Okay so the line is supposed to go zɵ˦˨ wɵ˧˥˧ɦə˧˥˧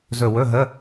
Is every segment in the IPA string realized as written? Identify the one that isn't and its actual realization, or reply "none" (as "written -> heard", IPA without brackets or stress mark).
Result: none